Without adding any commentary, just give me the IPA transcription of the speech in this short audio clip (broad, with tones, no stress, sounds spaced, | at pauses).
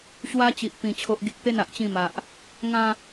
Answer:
ɕ w a˧ t͡ɕ i˨ ʔ p ĩ˨˩ t͡ɕʰ o˨ ʔ ɡ i˨ k̚ t̪ e˥˧ n a˨ ʔ t͡ɕ ĩ˥˧ m a˨ ʔ | ŋ ã˥˧